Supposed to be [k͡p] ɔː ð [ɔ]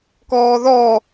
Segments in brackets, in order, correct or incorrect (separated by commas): incorrect, correct